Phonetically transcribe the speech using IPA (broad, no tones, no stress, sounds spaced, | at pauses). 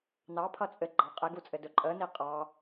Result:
n ɑ pʰ ʌ t͡sʼ ɘ ɡ͡ǃ ɑ qʼ e ɡ u t͡sʼ ɘ d ɵ ǃʼ ə n i qʼ ɑ